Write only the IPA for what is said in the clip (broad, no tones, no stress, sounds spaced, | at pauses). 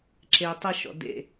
ǁ e tˤ ɪ ʃ ɔ̰ d ḛ